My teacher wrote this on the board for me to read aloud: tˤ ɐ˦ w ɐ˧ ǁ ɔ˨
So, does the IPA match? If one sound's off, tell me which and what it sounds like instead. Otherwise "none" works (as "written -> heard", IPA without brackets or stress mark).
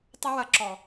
none